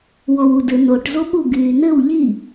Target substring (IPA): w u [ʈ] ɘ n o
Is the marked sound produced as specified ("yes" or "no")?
no